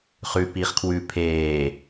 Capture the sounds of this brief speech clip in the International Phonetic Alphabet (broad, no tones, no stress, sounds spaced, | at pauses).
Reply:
χ ʉː p iː χ kʰ w ʉ pʰ eː